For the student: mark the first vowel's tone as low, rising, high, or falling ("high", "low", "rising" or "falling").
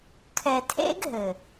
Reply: low